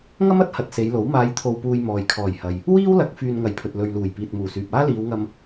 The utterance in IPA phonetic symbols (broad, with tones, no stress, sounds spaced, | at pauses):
ŋ ɐ˥ m ɐ˨˥ t̚ h ɐ˧ t̚ s e˨˧ j l o˨˥ w m aː˨˧ j t̪ʰ o˨ w p uː˨ j m ɔː˨ j kʰ ɔː˨˩ j h ɐ˨ j | w iː˥ w l ɐ˨˥ k̚ f yː˧ n ŋ ɐ˨˧ j pʰ ɵ˨ t̚ l ɵ˨ ɥ l uː˨˩ j p iː˨ t̚ m uː˨˩ s yː˨ p̚ aː˥ l iː˨˧ w ŋ ɐ˧ m